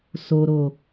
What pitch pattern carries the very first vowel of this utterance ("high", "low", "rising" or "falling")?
low